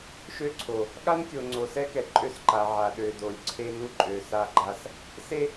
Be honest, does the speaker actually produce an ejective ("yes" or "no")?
yes